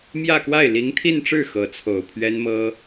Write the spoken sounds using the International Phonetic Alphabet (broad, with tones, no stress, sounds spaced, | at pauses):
m j ä˥˧ k w a˥˩ ɪ̯ l i˧˥ ŋ t̪ʰ i˥˧ n ʈ͡ʂ ɻ̩˥˩ x ɤ˧˥ t͡sʰ o˨˩ ʊ̯ pʰ ɥ ɛ˥ n m ɤ˥